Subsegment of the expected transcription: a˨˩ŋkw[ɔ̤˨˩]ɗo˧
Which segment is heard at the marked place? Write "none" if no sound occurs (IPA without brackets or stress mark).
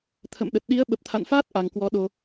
ɔ˨˦